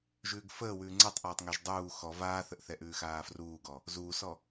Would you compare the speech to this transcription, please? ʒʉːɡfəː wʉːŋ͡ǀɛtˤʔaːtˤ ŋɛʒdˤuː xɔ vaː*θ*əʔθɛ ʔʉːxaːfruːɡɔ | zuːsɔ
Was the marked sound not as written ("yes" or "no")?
no